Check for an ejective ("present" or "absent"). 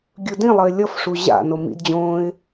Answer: absent